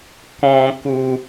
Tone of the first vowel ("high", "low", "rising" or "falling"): low